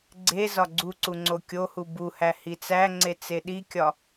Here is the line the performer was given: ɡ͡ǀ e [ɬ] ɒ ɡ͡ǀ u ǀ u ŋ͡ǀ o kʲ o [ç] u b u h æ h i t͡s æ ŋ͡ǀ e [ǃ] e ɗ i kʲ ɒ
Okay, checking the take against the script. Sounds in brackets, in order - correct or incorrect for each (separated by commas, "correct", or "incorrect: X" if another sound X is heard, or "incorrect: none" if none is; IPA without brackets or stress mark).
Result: incorrect: z, incorrect: h, incorrect: t͡s